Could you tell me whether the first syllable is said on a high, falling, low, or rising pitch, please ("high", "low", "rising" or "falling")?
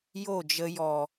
falling